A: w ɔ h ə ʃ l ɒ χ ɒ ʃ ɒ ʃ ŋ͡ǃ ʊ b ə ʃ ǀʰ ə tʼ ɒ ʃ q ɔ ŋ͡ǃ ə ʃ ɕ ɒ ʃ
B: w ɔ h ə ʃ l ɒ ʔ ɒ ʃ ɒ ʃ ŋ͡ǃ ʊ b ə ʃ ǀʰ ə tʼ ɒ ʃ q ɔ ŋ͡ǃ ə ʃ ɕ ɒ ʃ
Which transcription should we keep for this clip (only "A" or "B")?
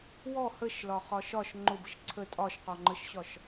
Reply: A